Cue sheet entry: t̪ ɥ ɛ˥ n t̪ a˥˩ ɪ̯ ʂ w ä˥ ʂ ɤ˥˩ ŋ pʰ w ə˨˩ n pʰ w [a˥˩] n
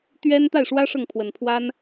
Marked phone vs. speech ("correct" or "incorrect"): incorrect